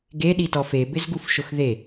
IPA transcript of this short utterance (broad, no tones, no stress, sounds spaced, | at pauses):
ɡ e ɗ i t ɔ f e b ɪ z ɡ u f ʃ ʊ x ð e